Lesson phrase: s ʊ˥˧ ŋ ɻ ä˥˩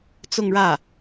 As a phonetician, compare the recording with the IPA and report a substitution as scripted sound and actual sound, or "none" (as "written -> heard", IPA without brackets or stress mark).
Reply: s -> t͡s